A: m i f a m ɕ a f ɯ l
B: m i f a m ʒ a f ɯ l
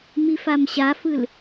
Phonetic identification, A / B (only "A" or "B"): A